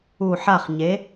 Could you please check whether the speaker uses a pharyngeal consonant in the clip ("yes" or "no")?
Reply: yes